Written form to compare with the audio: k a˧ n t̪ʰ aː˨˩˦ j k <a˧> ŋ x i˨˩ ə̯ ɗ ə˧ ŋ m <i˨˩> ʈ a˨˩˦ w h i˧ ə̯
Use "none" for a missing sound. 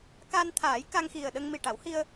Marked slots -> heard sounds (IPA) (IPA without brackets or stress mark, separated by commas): a˧, i˨˩